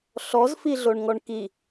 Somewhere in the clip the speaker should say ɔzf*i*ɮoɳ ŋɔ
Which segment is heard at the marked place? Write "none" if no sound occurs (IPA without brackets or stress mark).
i